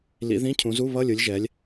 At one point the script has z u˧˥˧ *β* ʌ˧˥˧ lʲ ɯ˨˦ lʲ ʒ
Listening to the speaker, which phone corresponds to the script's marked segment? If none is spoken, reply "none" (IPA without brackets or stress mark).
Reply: β